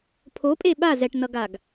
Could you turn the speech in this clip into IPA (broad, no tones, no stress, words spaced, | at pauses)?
pʰopʼe ɓa zɛʈnʌɡaɡ